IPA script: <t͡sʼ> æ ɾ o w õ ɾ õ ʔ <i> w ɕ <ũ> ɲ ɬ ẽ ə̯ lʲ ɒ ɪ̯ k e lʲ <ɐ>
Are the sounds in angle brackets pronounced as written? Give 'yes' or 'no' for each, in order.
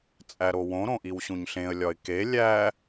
yes, yes, yes, no

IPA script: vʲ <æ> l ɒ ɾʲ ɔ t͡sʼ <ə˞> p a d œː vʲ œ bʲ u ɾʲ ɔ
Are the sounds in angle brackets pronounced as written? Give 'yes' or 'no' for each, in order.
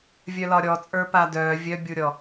no, yes

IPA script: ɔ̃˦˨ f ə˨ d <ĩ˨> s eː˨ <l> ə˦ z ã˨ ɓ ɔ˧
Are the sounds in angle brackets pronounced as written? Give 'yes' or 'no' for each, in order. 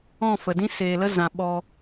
no, yes

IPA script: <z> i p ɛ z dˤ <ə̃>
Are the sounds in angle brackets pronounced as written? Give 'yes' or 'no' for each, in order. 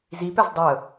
yes, no

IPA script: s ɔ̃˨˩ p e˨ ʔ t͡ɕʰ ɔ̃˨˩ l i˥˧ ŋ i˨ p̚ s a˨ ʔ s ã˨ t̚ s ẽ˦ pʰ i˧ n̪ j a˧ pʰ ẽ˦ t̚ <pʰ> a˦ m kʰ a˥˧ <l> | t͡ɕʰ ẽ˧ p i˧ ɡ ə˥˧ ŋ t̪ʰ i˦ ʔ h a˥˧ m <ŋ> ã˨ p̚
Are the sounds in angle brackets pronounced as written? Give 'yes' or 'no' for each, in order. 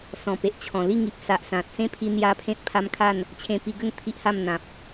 yes, no, no

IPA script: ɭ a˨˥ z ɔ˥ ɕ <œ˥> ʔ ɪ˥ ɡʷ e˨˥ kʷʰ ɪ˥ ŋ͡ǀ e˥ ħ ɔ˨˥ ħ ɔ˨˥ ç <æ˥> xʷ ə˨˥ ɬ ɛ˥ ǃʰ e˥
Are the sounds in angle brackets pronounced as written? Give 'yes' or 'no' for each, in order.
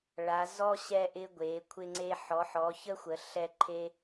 no, no

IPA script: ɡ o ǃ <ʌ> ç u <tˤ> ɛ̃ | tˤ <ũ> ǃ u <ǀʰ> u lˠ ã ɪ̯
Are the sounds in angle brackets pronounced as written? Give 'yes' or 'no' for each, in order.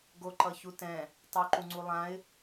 yes, no, no, no

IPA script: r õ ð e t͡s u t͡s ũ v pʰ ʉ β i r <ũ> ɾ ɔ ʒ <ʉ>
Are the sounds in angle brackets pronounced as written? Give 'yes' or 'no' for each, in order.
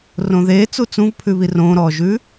no, yes

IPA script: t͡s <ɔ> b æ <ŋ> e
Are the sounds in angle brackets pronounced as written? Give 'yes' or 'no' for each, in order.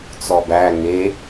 yes, yes

